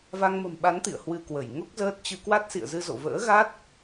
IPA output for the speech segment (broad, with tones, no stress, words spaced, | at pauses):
va˧ŋmə̤˨˩mɓa˨˦nt̪ḭ˧˨ə̯ hwɨ˧kwə˧˩j ŋo˦˥k̚zəː˦˥t̚t͡ɕɨ˧ kwa˦˥t̚sḭ˧˨ə̯zɨ˧ zo̰˧˨ və̰ː˧˥ɣa˦˥t̚